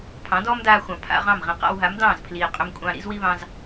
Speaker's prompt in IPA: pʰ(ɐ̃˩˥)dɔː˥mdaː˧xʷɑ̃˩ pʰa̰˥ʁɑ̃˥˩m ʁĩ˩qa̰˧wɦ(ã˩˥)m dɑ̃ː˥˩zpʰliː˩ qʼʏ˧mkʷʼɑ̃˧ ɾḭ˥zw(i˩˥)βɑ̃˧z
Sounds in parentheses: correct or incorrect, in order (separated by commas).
incorrect, incorrect, incorrect